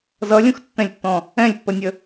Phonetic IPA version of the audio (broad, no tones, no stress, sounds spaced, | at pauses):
z ʌ lʲ ũ x tː ɛ̃ lʲ tː ɔ̃ | ɛ̃ lʲ pː ə nʲ ə